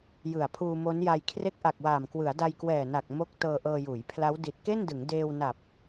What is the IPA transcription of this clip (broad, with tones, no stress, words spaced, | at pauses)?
jɯ˨˩a̯pʰuː˧mo˦˥nja˧j kʰre˦˥k̚ʔa˨˩k̚waː˨˩mkwɯ˩˦a̯ da˧jkwɛː˨˩na˨˩k̚ mo˦˥k̚ tɤː˧ʔɤː˧juː˩˦jpʰla˦˥w di˨˩t̚ke˥˩ndɯ˩˦ŋ deː˧wna˨˩p̚